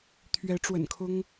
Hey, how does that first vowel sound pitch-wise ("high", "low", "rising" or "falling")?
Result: rising